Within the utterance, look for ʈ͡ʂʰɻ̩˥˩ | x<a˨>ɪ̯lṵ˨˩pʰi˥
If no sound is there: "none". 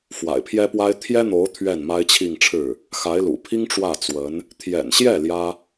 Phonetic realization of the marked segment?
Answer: a˧˥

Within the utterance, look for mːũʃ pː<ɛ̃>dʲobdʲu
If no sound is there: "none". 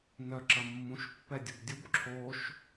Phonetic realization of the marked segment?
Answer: ɛ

